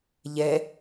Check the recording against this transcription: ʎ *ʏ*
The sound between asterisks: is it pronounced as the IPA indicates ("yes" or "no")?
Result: no